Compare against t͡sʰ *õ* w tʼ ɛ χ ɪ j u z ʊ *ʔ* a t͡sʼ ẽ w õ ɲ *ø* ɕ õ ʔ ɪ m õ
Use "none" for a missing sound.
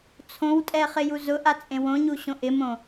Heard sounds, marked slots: õ, ʔ, u

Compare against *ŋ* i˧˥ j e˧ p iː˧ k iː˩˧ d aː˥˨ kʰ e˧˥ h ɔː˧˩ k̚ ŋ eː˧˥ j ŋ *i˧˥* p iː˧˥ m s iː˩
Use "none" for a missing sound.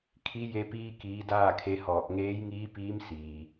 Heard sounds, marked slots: kʰ, iː˧˥

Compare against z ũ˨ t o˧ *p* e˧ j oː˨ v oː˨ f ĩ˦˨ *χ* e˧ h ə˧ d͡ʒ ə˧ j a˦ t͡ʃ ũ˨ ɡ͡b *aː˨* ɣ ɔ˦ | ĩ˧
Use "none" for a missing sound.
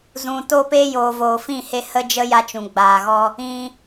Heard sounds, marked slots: p, h, aː˨

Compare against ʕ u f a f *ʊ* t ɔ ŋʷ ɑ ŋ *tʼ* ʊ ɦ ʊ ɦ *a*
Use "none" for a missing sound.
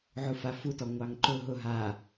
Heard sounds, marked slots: u, ǃ, a

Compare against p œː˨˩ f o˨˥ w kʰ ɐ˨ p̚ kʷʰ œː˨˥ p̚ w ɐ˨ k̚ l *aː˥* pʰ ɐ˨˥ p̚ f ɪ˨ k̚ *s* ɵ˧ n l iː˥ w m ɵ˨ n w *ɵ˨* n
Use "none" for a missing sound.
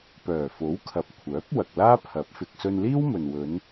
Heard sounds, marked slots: aː˥, s, ɵ˨˧

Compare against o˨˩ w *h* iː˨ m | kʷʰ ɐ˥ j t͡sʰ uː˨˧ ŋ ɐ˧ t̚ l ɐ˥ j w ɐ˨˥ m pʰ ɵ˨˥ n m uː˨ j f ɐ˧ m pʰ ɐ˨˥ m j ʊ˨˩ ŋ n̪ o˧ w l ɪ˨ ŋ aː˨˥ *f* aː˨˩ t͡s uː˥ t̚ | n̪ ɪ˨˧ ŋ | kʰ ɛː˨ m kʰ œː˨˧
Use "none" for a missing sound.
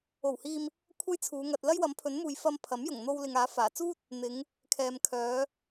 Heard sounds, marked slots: h, f

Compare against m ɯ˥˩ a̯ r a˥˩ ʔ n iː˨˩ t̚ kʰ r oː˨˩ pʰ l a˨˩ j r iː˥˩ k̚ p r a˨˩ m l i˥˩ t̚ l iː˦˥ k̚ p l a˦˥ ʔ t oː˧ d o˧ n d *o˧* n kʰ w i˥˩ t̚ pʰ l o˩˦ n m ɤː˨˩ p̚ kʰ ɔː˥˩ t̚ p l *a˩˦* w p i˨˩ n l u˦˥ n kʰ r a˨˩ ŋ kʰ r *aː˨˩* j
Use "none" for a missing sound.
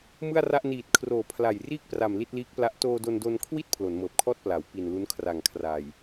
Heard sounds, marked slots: o˧, a˩˦, aː˨˩

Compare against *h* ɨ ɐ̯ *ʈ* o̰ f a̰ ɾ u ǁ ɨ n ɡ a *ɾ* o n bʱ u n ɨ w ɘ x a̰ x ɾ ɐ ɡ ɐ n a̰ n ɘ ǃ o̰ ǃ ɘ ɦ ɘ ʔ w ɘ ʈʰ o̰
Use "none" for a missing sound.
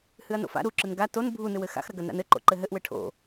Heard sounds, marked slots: h, n, t

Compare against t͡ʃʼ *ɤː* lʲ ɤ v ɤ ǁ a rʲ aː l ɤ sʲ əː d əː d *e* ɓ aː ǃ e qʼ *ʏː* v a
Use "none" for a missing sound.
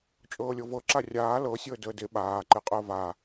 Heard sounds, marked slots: ɤː, e, əː

